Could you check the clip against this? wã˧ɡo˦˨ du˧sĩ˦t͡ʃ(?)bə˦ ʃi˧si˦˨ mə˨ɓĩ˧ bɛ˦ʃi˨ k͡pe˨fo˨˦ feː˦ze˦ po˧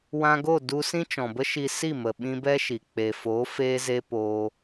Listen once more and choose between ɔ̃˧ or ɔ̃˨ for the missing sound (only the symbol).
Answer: ɔ̃˨